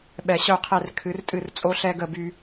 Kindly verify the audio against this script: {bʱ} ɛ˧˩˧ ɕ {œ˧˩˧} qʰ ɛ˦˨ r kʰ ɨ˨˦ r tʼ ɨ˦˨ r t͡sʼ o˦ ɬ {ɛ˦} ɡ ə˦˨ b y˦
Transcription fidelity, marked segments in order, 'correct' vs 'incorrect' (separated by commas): incorrect, incorrect, correct